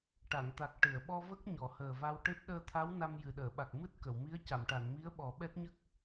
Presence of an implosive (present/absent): present